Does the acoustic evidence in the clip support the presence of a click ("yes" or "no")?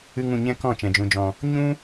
no